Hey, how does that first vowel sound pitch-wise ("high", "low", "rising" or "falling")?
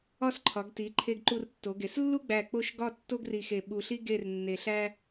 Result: falling